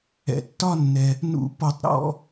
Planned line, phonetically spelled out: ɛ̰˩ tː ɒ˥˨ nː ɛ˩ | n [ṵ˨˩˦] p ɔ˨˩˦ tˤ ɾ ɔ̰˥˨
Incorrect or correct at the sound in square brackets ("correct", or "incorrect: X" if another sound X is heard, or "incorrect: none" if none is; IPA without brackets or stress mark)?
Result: correct